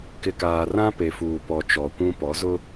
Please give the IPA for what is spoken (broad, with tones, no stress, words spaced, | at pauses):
kɪ˨kaː˨rã˦ pe˨fuː˨pɔ˨ t͡ʃɔ˨kʷũ˦ pɔ˨˦zʊ˦